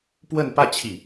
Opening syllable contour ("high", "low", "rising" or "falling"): falling